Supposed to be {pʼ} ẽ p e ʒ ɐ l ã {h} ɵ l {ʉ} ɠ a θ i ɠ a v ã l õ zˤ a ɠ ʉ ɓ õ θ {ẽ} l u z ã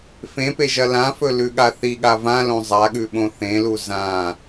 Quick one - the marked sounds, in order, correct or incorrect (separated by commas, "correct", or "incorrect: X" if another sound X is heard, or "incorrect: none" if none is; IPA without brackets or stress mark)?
incorrect: f, incorrect: f, correct, correct